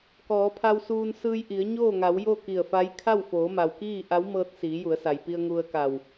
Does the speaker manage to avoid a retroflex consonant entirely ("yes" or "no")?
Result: yes